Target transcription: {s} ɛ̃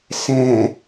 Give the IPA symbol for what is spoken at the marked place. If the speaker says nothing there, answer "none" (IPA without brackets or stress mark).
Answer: s